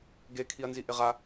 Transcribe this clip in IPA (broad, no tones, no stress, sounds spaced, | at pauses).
ɡ e kʰ i ɐ̯ n z i ʔ ɪ ʁ a